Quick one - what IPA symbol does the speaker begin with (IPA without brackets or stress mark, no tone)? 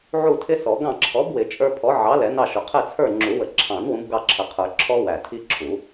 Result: ʕ